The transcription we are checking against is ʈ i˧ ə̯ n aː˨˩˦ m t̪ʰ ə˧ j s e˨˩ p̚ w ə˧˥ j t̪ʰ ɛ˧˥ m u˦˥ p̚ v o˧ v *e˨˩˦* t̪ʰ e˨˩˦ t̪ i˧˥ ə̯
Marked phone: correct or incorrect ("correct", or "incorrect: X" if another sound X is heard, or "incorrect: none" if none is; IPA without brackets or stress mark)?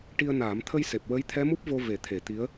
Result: correct